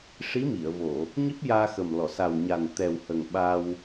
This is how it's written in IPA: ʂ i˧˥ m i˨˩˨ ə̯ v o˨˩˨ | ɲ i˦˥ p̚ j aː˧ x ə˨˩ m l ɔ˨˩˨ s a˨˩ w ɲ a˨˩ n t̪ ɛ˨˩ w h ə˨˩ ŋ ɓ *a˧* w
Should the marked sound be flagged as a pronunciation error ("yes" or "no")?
no